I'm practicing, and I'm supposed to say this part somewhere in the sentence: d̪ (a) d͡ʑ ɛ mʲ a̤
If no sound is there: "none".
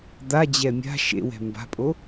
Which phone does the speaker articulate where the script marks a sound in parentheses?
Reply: a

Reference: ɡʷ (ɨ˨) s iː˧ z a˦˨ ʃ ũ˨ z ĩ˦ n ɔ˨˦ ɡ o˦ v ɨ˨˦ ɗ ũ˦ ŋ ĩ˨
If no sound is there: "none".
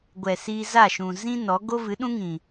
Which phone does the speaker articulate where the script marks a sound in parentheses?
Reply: ɛ˨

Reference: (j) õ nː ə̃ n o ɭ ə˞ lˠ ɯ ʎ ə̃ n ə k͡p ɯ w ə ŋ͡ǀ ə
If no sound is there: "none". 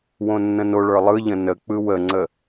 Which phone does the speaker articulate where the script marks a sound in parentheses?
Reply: w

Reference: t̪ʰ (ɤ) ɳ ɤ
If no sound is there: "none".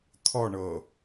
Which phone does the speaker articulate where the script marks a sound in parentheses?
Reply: ɔ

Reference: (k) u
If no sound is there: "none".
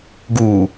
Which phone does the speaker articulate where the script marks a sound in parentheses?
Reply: ɡ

